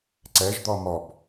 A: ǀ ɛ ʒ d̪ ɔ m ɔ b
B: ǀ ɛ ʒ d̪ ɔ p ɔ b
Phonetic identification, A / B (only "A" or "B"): A